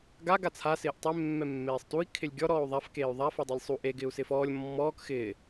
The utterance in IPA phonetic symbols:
ɡ a ɡ a t͡sʰ a s ɪː ʔ tˤ e mː ɛ mː eː sˤ t u i̯ kʰ ɪ lʲ ɡʲ ɔ ɾ ɔː u̯ ðˤ a f k eː y̯ ðˤ a f o dˤ i lʲ sˤ u ʔ e ɡ ɪː u̯ s ɪː f ɔː lʲ mː ɔː k x ɪː

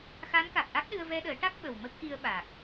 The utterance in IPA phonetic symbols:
x a˧˥ n k a˨˩ k̚ ʔ a˦˥ k̚ ɗ ɨ˧ ə̯ v ɛ˧ ɗ əː˨˩˦ ʈ a˦˥ k̚ ɓ ə˨˩ w m ə˦˥ k̚ ʔ i˧ ə̯ ɓ a˨˩ k̚

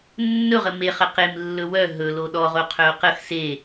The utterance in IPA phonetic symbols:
nː ɵ ʁ ə m e χ ə q e m lː ɵ w œ ɦ ɵ l o ɗ ɔ ʁ o qʰ œ o̯ q ə x s e

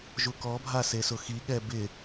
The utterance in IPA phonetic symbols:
ʒ u k ɔ bʱ a s e s ʊ x i ɠ ɛ b ɪ

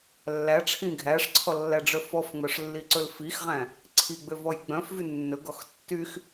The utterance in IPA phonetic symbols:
lː æ ʈ͡ʂʰ ĩ ɡʱ æ ʂ ǀʰ ɔ lː æ ɖ͡ʐ œ f ɔ f ŋ͡m œ ʂ lː i ǀ ɵ l f i x ʁ æ̃ | ǀʰ i ɡ͡b ø v ɔ j ɡ͡b œ̃ f v y nː ɵ ɡ ɔ x tː y x

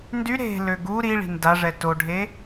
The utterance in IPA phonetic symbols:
n d y ɾ e̤ l ø ɡ u ɾ i ɭ i̤ n d a ʐ ɛ t o ɖʱ e

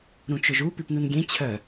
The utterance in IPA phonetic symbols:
ɾ ũ t͡ʃ ʊ ʒ u p i p n u n ɡʲ ẽ t͡ɕʰ œ

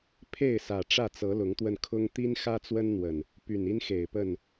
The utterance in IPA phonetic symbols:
pʰ e˥˨ ɪ̯ s ä˨˩ ʈ͡ʂ ä˥˨ t͡s ɤ˨˦ l ʊ˨˦ ŋ t̪ w ə˧ n kʰ ʊ˦ ŋ t̪ i˦ n x ä˦ t͡s w ə˦ n n̪ w ə˨˩ n | p y˨˩ n i˦ n x e˨˩ ɪ̯ p ə˥˨ n

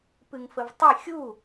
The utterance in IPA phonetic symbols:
p ɨ ŋ f ə v tˤ i xʲ u

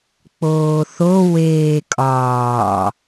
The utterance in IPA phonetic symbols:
k͡p oː θ o w eː kʼ ɒː

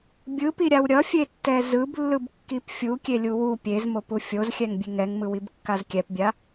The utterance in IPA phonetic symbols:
bʲ ɯ p i ɾʲ a w ɾʲ ʌ fʲ e tː ɛ z ɯ b lː ɯ b kː i p fʲ u kʲ e lʲ u w u pʲ e z m o p u fʲ o z xʲ ɛ ŋ bʲ e ŋ ɛ ŋ m ɯ w i b kː a z kʲ ɛ p bʲ a

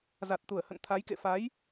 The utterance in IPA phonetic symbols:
z a˨˩ t̚ t̪ u˧˩ ə̯ h ə̰˧˨ n t̪ʰ a˨˦ j k ḛ˧˨ f a˨˦ j

